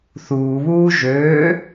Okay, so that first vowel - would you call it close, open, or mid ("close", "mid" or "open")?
close